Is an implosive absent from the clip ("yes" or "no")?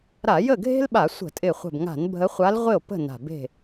no